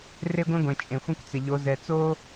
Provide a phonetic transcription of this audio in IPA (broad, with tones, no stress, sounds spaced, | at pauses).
r e˦ ɡʷ ẽ˦ ɡʷ ẽ˨ t͡ʃʼ ẽ˨ xʷ ɛ̃˦ kʷ t͡s ɪ˨ ʎ o˨˦ z ɛ˨ t͡s o˦